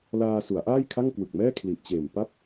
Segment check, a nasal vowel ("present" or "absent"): absent